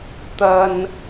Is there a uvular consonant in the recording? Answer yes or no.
no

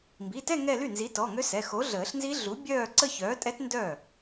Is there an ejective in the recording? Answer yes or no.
yes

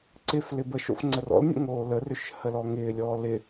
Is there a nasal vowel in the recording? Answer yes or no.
no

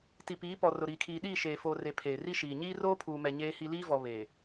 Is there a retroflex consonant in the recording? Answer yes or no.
no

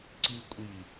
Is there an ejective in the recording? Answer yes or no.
yes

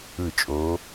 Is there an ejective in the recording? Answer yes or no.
yes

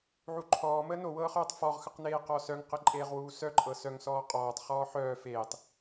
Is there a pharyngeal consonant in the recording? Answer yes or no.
yes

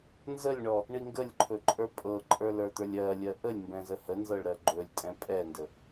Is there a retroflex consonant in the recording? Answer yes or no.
yes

